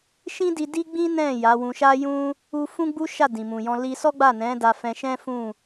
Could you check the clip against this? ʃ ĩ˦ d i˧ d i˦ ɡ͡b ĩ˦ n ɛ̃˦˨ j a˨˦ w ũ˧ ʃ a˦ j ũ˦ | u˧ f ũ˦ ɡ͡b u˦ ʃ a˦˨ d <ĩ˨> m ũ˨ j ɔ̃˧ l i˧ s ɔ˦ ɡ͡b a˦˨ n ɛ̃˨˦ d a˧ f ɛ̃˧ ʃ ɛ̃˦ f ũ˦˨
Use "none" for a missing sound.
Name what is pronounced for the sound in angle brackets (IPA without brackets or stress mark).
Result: ĩ˨